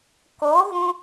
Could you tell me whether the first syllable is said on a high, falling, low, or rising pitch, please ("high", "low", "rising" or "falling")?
rising